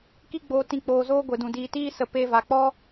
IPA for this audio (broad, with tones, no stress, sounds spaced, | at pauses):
k i˦ ɡ͡b oː˧ t ĩ˨ k͡p oː˨ z oː˧ ɡʷ e˨ d ũ˨ d iː˨ t iː˦ s ə˧ p e˧ v a˨ k͡p ɔ˦